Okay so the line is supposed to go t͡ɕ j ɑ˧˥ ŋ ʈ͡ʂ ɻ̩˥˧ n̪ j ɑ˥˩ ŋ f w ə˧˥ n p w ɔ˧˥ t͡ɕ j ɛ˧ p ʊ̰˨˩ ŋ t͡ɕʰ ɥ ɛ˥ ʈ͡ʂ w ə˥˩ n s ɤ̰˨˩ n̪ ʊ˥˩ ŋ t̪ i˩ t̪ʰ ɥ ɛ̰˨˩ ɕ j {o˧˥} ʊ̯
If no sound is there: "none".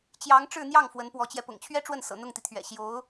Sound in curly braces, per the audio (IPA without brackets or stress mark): o˧˥